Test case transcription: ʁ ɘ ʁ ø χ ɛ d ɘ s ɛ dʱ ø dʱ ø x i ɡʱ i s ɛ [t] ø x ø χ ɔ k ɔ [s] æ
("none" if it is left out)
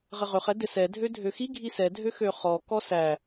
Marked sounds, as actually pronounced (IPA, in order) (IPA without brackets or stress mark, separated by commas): dʱ, s